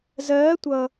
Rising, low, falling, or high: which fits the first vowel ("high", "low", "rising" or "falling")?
rising